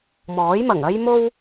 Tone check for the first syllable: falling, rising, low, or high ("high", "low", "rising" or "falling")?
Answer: rising